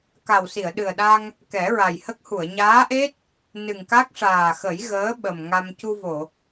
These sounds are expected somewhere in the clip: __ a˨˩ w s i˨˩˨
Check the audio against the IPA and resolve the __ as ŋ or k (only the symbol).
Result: k